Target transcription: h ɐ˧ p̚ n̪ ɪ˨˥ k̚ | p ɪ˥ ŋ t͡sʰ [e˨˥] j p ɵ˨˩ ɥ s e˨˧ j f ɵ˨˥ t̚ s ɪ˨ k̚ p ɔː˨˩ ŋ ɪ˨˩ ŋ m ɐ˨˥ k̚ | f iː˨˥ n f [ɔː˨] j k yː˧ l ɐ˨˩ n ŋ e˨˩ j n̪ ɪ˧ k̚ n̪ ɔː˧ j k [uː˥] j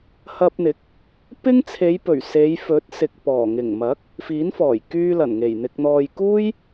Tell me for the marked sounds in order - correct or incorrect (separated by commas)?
incorrect, incorrect, correct